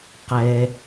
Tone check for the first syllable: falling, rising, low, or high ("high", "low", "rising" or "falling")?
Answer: low